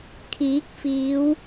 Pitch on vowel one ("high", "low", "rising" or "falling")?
rising